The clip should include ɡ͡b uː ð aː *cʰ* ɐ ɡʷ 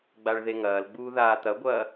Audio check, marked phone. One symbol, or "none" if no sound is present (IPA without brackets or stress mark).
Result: t̪